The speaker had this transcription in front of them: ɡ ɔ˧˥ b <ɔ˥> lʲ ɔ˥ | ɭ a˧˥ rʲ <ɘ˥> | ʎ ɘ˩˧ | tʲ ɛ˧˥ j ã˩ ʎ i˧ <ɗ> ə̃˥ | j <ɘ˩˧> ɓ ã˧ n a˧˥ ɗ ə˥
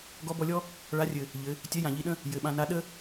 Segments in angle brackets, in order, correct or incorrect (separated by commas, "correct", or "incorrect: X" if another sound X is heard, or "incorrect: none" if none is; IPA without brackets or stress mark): incorrect: ɔ˧, incorrect: ɘ˩, correct, correct